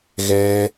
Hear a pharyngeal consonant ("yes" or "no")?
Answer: no